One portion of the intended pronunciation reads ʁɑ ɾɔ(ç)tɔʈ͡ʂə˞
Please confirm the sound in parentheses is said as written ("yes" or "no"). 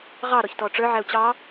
yes